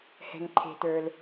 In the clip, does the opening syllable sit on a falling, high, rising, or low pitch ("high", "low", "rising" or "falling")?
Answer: low